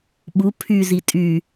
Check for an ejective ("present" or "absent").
present